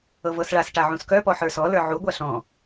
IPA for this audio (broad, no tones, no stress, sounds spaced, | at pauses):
ɤ v ɤ s ɭ a s ʈ a ʕ ũ s k œ p ɔ ħ ə˞ s ɔ l ə˞ ʕ u ɡʷ a ɬ ɔ̃